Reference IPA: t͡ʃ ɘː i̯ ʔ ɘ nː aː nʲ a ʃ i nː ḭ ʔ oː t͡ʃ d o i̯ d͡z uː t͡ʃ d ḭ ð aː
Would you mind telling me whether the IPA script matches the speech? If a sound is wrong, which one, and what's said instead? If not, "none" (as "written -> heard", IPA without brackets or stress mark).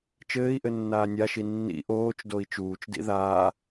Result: d͡z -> t͡ʃ